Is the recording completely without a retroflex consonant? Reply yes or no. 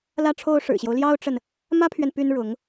no